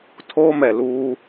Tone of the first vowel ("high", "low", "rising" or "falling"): high